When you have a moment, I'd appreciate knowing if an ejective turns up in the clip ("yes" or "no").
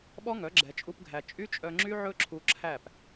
yes